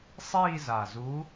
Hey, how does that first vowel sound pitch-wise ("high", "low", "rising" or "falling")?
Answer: falling